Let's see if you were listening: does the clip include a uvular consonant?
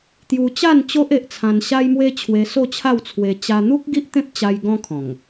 no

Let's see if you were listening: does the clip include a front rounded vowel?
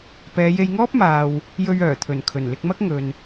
yes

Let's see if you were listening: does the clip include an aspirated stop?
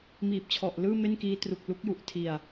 yes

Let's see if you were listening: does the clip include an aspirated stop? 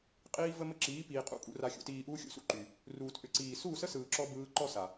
no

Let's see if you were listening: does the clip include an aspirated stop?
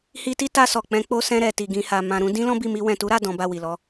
no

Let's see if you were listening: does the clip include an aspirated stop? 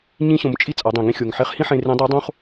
no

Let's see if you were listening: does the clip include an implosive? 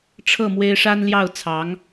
no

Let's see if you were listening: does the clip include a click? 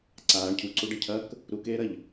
yes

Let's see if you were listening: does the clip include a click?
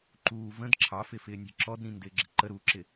yes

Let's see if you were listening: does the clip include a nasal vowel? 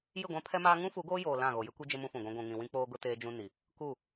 yes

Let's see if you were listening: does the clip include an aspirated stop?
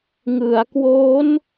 no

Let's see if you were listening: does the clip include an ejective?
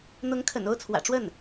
no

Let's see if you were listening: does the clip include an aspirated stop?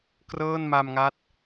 no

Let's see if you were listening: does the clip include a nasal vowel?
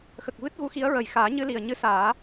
no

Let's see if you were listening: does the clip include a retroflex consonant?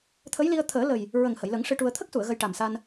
yes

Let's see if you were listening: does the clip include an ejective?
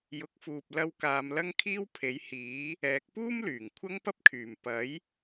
no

